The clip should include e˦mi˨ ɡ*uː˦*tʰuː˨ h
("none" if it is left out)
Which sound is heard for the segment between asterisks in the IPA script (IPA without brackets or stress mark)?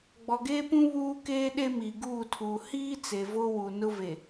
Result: uː˦˨